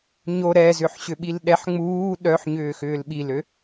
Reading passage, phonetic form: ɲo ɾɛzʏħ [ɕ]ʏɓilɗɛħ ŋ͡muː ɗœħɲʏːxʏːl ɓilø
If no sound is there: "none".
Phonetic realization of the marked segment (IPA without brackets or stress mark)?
ɕ